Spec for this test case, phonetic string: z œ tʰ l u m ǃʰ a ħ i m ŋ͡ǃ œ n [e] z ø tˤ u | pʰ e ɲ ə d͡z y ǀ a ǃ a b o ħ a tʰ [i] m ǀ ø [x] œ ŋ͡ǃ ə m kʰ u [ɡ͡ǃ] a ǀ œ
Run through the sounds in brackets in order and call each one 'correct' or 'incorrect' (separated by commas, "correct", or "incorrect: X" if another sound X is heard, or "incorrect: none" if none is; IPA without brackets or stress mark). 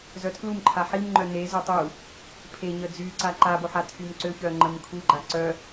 correct, incorrect: y, incorrect: ç, correct